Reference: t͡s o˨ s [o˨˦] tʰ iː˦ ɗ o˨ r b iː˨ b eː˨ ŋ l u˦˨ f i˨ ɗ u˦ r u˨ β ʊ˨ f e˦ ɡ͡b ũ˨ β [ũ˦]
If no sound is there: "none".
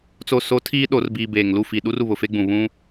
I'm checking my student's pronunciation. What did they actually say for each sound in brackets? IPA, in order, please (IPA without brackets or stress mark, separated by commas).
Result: o˨˦, ũ˦